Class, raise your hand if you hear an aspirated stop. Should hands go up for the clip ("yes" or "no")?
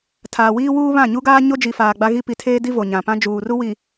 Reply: yes